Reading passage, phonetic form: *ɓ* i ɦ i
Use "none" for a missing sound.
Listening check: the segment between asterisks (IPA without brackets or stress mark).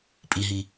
pʼ